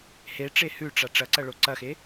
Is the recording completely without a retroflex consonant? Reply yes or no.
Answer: no